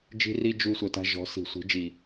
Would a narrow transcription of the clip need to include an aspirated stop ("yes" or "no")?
no